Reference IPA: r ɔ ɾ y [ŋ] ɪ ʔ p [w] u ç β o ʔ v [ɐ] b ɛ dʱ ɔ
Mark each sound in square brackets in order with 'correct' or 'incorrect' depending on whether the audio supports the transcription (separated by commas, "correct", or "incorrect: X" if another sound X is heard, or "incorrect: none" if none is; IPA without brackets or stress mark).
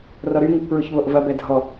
correct, incorrect: ɹ, correct